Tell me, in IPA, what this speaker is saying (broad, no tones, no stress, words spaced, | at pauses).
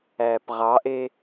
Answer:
æːpʁɑʔe